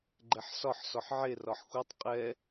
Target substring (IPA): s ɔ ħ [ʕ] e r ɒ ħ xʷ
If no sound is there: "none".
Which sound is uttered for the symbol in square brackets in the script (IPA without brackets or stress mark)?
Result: ʕ